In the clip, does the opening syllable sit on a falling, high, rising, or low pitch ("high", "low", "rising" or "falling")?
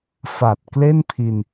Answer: low